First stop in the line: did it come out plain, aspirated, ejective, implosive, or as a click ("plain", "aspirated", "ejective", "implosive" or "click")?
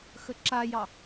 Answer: click